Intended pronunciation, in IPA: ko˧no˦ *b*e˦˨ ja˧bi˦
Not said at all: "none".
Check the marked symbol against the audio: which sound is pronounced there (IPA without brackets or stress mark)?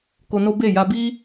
b